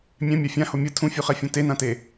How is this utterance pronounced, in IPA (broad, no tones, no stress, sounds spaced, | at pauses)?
mʲ ɛ̃ mʲ a fʲ ã h o mʲ ɯ tʰ ũ fʲ u χ ɛ fʲ õ t e n ã t e